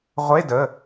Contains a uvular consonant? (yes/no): yes